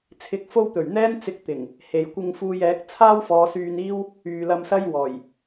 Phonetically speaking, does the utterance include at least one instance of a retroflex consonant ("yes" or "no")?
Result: no